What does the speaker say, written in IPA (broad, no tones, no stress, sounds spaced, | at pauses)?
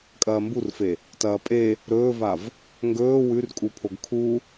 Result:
kʼ ɐː m b u r f e | t ɐː pʼ e | ɾ ɵː v a v | ŋ ɡ ɵː w ʉ r kʼ u pʰ o ɡ kʰ u